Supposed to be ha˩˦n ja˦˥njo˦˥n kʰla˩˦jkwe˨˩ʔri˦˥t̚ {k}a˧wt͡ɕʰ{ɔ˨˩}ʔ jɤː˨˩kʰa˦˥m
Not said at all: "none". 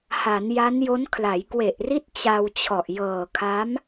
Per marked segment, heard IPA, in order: t͡ɕ, ɔ˨˩

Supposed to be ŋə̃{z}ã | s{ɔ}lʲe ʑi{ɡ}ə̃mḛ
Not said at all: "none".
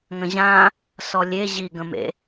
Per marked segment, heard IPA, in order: ʑ, ɔ, ɡ

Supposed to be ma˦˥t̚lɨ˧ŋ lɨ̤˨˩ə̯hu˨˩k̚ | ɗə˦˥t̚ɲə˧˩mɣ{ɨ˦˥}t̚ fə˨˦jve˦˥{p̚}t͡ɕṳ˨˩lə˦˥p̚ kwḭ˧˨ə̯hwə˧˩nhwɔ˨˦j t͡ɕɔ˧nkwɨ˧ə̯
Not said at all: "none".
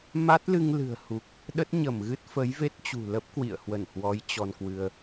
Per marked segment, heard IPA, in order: ɨ˦˥, t̚

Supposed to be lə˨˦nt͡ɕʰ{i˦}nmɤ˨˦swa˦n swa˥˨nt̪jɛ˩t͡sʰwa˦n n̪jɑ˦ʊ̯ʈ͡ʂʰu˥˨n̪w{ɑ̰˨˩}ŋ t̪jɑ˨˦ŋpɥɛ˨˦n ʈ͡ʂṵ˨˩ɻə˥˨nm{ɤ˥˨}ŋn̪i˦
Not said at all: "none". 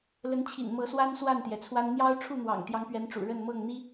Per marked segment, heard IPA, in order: ḭ˨˩, ɑ̰˨˩, ɤ˥˨

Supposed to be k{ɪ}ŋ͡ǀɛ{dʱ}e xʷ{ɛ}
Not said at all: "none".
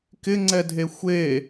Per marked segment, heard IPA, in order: ɪ, dʱ, e

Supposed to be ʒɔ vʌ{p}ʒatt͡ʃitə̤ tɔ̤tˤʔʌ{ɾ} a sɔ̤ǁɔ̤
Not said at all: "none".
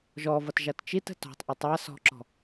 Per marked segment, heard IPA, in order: t, tˤ

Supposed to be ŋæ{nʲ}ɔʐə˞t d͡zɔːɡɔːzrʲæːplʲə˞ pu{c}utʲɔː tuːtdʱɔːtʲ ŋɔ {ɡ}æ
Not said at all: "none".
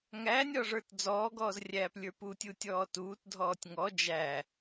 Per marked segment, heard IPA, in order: nʲ, tʲ, d͡ʒ

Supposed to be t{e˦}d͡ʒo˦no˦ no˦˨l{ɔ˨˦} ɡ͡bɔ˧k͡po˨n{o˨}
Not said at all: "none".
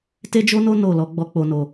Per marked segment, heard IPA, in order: e˦, ɔ˨˦, o˨

